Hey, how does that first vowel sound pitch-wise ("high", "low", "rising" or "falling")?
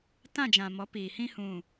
falling